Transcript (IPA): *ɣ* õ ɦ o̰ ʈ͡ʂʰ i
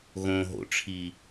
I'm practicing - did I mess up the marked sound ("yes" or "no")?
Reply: no